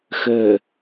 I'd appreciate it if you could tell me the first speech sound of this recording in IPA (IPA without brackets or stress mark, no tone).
x